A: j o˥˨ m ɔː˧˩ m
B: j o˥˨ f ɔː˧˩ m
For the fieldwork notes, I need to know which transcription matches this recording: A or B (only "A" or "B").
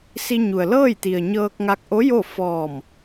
B